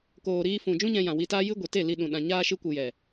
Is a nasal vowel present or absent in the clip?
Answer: present